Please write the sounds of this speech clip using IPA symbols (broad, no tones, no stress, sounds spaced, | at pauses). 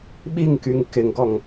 ɓ i ŋ k y ŋ k ɪ ŋ ɡ ɔ ŋ